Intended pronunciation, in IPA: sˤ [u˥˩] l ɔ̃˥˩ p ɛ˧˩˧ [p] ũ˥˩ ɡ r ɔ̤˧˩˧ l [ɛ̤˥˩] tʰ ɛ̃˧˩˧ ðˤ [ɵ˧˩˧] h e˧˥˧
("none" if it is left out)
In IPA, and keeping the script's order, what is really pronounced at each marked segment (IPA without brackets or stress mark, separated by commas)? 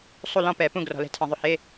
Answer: u˥˩, p, ɛ̤˧˥, ɵ˧˩˧